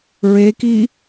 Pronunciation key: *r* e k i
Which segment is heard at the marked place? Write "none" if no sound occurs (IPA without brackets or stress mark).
ɹ